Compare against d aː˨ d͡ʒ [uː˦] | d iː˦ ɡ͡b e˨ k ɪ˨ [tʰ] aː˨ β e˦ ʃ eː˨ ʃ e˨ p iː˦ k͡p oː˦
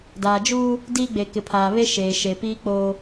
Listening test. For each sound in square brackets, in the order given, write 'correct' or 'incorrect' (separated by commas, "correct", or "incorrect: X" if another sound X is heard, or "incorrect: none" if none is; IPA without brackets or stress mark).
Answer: correct, incorrect: pʰ